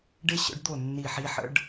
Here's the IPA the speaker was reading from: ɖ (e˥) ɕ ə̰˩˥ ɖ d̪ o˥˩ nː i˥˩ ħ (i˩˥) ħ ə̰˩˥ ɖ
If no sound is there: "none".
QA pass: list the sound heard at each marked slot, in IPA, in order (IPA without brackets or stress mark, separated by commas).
e˥, i˥